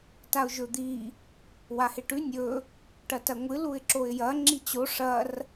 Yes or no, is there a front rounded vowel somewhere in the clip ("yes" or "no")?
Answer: no